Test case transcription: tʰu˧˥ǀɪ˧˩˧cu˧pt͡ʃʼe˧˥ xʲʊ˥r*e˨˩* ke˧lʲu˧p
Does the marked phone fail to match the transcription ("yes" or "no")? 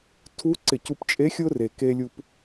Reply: no